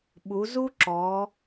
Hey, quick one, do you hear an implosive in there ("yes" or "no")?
yes